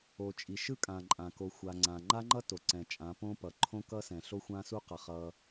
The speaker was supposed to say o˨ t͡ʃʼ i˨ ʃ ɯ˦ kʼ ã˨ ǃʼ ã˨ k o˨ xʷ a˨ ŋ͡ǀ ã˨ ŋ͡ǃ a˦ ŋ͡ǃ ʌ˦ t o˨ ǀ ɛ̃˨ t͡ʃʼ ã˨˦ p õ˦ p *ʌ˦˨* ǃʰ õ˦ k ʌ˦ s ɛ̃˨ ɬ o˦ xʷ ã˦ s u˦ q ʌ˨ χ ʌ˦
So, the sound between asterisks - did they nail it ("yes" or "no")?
no